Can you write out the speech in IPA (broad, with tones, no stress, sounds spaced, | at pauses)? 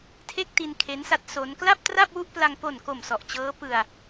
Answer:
tʰ e˥˩ k̚ t i˧ n kʰ e˦˥ n s a˦˥ t̚ s o˦˥ n k l a˥˩ p̚ t r a˥˩ p̚ w u˥˩ ʔ p l a˧ ŋ p o˨˩ n k o˨˩ m s ɔ˨˩ ʔ t͡ɕ ɤː˦˥ p ɯ˧ a̯